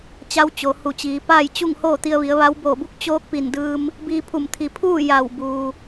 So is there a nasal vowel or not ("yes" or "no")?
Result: no